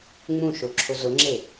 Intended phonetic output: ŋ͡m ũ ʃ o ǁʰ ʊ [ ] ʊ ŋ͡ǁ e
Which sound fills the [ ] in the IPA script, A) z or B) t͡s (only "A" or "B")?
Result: A